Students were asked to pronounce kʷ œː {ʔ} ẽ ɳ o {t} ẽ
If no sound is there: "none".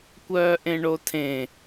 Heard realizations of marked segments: ʔ, tʰ

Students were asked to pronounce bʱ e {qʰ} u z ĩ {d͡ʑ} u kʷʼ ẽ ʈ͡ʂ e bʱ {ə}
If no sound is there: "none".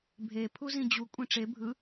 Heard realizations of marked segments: pʰ, d͡ʑ, ɯ

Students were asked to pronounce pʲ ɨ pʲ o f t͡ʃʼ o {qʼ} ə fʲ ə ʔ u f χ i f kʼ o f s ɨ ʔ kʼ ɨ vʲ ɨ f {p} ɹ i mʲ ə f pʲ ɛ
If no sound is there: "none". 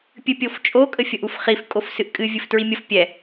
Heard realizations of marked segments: kʼ, t

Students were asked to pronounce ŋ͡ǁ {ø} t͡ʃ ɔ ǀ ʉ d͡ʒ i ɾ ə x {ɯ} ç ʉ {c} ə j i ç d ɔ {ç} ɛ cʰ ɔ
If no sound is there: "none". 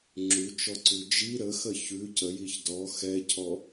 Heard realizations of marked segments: ʉ, ə, c, x

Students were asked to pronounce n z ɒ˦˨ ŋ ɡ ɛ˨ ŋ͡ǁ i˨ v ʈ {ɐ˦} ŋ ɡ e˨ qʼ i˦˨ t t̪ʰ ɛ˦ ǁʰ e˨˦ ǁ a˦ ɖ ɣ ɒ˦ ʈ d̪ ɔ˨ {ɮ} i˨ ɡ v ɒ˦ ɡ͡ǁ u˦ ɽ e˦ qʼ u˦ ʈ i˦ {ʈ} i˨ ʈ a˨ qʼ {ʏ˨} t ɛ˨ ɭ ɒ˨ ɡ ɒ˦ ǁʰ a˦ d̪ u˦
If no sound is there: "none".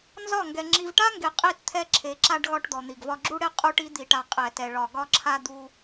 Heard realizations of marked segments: a˦, n̪, d̪, ɛ˨

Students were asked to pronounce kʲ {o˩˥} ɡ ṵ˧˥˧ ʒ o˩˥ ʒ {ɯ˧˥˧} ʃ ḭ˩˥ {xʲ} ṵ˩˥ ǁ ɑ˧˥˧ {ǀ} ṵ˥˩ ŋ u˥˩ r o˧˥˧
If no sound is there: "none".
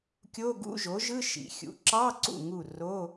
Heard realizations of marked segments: o˧˥˧, ɯ˧˥˧, xʲ, ǀ

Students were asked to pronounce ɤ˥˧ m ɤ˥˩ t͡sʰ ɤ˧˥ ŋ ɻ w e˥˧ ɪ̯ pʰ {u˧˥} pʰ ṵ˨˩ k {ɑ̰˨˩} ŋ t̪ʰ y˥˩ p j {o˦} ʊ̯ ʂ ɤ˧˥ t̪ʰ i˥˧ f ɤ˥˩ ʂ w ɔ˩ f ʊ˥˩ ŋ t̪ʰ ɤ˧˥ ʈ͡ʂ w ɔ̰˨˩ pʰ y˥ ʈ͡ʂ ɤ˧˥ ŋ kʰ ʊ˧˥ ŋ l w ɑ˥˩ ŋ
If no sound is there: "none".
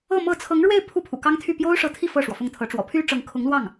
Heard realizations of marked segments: u˥˩, ɑ˥, o˥

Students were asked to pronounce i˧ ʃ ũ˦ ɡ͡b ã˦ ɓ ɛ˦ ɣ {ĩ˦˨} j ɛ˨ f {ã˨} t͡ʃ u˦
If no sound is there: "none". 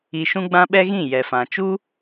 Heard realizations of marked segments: ĩ˦˨, ã˨

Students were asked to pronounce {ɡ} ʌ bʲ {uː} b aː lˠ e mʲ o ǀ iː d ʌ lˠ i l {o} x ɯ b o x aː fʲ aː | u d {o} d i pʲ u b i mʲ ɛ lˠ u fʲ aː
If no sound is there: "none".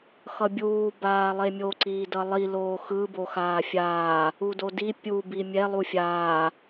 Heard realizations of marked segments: x, uː, oː, o

